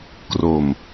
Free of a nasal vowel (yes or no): yes